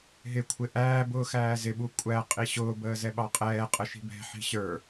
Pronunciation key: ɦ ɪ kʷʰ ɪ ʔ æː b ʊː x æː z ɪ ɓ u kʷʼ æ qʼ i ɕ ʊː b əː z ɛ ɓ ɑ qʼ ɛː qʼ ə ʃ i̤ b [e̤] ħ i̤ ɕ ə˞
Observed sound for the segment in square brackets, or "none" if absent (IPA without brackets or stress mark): ɛ̤